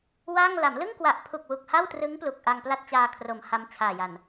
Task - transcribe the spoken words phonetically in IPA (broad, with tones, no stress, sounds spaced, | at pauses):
w a˥˩ ŋ l a˩˦ m l ɯ˥˩ ŋ k w a˨˩ ʔ pʰ u˨˩ k̚ w u˨˩ k̚ h a˥˩ w t r ɯ˦˥ ŋ p l u˨˩ k̚ ʔ a˧ ŋ p l a˥˩ t̚ t͡ɕ aː˧ kʰ r o˩˦ m h a˦˥ m t͡ɕʰ aː˨˩ j a˨˩ n